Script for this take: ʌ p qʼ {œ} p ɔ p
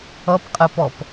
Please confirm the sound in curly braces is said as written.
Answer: no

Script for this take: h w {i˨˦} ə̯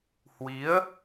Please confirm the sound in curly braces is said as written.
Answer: yes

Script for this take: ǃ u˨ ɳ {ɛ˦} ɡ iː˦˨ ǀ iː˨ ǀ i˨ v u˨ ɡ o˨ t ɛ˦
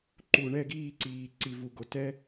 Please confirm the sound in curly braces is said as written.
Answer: no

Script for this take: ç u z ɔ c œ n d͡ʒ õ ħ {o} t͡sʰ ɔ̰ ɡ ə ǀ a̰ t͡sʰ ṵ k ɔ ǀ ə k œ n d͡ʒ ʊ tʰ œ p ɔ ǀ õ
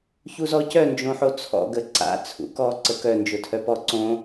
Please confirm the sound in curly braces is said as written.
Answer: yes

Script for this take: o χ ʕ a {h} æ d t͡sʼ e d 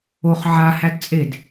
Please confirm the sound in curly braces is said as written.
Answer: yes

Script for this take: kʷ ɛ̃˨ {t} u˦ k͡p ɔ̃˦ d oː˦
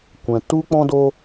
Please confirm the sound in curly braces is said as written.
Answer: yes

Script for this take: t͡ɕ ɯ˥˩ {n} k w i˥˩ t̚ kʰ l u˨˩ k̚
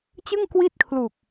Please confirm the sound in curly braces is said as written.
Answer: no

